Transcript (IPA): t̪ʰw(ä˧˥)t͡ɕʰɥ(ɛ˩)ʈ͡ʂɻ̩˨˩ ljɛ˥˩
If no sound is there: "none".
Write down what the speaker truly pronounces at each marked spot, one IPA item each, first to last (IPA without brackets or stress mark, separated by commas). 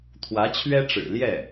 ä˧˥, ɛ˥